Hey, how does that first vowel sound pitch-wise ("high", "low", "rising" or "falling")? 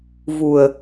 low